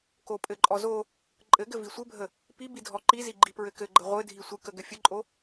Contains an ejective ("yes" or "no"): yes